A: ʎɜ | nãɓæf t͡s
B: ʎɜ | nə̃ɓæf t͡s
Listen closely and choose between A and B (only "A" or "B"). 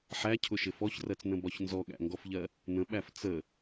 B